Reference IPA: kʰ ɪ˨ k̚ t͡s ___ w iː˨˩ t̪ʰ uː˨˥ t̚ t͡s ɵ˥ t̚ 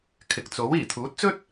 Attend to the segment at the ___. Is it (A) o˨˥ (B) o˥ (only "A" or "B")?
A